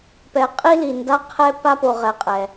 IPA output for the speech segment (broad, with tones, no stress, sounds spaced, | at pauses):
p ɛ˨ qʼ i˦ l i˨ n d a˦ qʰ ɛ˦ p a˦ p o˨ ʁ ɛ˨ qʼ ɛ˨